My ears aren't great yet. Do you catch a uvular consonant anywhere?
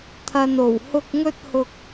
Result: no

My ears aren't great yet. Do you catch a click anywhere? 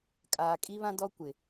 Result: no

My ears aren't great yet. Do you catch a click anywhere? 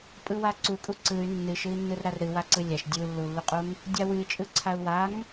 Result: yes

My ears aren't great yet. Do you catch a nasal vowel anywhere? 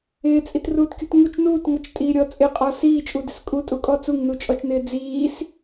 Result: no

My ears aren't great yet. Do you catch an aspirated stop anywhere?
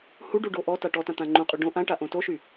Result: no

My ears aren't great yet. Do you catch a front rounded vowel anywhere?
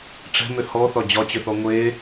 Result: yes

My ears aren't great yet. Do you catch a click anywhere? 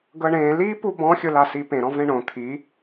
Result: no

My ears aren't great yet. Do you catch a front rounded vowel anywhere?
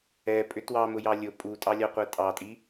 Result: yes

